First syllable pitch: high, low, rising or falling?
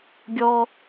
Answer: high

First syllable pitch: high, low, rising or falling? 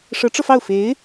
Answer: rising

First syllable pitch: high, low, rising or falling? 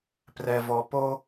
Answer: low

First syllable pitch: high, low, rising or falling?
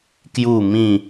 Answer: falling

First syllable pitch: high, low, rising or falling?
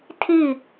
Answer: falling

